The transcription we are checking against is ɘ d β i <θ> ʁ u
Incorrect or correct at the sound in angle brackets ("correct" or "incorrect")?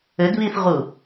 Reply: correct